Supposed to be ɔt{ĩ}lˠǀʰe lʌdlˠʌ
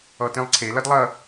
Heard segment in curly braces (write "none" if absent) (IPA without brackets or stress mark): ĩ